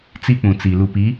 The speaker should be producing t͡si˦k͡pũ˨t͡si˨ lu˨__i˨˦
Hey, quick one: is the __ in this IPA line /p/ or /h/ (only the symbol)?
p